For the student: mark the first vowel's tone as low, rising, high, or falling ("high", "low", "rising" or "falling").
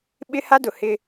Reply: high